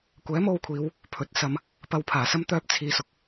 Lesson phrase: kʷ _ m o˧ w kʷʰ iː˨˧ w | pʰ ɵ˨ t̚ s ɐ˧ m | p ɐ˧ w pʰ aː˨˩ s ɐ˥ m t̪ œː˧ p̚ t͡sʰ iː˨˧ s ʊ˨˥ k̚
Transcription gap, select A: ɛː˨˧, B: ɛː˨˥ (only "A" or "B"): B